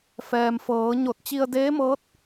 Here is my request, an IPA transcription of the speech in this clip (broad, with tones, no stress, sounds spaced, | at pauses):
f ɛː˩ m f ɤː˩˧ ɲ o˧˩ t̚ t͡ɕ i˧ ə̯ d eː˧˥ m ɤː˧˥ t̚